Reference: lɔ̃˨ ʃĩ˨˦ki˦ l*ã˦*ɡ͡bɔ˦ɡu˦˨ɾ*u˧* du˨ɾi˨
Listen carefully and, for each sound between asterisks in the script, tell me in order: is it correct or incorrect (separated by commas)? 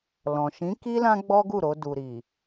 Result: correct, incorrect